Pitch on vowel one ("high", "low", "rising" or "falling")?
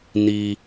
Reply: low